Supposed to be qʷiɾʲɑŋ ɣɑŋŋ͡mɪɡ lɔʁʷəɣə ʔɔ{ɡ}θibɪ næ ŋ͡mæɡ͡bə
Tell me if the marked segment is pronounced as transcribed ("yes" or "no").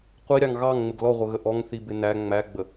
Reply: no